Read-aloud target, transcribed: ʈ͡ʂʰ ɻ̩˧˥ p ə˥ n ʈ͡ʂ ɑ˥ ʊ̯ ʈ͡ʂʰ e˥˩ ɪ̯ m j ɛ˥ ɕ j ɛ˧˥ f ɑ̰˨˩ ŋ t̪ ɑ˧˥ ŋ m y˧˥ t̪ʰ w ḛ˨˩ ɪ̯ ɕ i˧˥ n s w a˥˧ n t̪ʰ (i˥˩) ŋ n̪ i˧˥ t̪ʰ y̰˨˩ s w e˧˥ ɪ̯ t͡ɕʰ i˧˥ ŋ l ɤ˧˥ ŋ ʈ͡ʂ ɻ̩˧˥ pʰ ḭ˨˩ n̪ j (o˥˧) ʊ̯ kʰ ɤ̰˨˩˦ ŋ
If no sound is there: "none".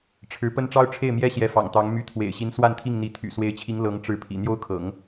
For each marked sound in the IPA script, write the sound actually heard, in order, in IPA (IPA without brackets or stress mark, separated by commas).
i˥˩, o˥